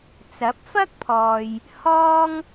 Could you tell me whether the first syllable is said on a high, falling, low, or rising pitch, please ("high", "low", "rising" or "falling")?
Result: rising